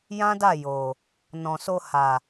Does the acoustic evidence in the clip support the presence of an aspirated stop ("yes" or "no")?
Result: no